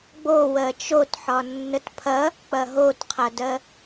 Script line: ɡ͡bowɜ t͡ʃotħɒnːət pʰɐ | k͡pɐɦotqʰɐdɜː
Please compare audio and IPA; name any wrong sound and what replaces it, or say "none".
ɜː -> ɜ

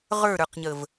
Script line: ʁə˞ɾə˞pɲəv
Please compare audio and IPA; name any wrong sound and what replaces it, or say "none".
p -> q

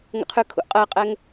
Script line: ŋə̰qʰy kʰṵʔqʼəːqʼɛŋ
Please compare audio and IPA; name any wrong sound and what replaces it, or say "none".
none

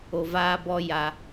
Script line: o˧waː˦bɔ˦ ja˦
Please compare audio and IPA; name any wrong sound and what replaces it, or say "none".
w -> v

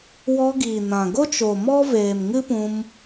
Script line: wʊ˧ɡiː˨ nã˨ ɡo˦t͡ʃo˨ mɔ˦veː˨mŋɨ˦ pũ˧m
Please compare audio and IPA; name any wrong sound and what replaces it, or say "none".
ʊ˧ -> ɔ˧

